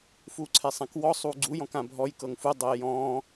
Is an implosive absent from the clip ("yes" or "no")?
yes